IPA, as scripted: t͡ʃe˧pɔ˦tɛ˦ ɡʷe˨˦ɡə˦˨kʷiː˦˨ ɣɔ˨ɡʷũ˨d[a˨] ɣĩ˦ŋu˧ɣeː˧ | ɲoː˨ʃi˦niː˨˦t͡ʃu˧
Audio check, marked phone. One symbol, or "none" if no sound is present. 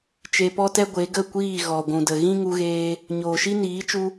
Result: ə˨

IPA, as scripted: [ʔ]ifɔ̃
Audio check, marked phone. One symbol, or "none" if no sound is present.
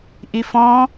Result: ʔ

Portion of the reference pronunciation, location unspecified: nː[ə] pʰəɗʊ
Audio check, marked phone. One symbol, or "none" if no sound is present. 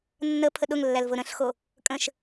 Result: ə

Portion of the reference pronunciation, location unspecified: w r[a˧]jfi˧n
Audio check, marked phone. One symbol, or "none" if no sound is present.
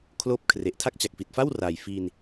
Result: a˨˩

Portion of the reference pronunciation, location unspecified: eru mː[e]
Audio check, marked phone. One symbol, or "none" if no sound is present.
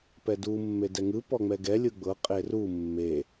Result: e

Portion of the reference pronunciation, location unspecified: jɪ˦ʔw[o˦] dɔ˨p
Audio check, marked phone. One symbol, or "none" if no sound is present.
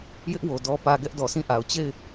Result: o˨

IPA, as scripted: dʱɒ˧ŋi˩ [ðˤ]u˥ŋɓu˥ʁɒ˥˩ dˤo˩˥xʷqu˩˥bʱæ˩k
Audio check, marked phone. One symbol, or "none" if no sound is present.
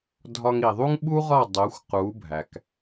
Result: ðˤ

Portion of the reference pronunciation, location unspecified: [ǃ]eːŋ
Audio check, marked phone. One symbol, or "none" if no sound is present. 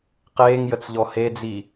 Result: q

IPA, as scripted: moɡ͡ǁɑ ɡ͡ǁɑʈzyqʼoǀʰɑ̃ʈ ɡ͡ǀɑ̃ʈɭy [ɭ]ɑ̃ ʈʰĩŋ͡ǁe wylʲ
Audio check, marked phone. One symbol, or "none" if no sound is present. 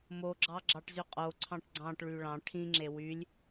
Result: ɭ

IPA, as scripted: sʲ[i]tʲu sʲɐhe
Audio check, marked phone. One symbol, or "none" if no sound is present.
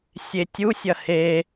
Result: e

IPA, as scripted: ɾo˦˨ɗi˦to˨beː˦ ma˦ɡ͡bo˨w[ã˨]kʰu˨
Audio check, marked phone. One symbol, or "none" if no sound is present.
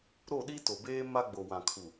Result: ã˨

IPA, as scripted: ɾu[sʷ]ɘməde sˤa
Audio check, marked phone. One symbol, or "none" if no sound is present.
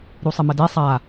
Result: sˤ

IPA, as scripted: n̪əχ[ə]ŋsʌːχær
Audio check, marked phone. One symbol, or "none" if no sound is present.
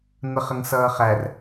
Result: ə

